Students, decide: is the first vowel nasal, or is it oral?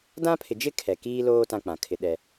nasal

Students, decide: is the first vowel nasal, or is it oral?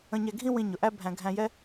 nasal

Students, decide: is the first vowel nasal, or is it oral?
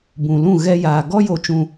nasal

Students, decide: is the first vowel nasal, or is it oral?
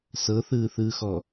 oral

